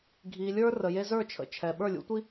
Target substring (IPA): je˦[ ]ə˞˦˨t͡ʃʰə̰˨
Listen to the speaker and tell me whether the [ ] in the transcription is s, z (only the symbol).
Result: z